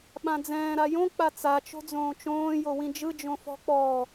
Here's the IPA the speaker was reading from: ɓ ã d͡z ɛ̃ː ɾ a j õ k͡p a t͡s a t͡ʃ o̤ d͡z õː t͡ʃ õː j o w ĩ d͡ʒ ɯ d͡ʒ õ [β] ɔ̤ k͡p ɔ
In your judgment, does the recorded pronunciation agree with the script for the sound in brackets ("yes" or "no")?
no